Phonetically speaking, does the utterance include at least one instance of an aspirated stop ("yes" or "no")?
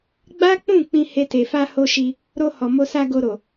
no